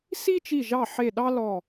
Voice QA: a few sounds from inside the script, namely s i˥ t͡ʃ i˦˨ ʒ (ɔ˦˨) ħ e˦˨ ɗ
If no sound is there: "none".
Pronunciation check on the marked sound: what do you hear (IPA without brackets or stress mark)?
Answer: ɑ˦˨